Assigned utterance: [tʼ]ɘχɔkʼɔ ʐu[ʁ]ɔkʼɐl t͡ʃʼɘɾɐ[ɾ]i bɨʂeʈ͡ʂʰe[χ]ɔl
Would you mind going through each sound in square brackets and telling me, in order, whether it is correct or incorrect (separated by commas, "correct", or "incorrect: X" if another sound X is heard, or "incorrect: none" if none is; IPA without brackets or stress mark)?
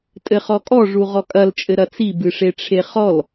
correct, correct, incorrect: t͡s, correct